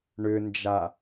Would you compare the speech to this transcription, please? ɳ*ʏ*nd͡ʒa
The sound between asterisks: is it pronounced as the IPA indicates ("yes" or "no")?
yes